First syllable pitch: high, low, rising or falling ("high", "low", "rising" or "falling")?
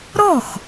falling